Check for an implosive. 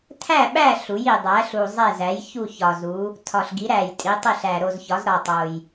present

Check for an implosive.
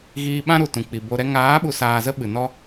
present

